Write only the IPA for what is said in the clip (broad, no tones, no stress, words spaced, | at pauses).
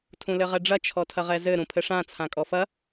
tʰũlɘʁɛɖ͡ʐɐ t͡ʃʰɔtʰɐʁɛzɘ ɾũpʰɘʂã t͡sʰãkʼɔfɐ